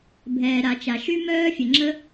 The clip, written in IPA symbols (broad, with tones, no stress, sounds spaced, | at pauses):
bʱ ɛː˩ ɾ a˩ t͡ʃ a˩ ʃ y˥ m œː˥ fʲ ə˩ ŋ͡ǁ ə˥